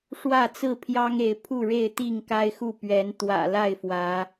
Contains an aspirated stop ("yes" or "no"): yes